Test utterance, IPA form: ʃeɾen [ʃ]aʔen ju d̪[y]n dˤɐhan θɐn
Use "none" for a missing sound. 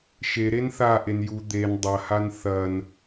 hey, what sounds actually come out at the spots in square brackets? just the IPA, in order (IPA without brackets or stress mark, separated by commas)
θ, e